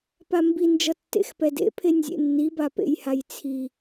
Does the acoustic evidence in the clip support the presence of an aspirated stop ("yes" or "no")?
yes